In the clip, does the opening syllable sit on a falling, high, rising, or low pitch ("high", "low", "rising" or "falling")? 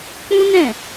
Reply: high